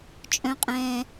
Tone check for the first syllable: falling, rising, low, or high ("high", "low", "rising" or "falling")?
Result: high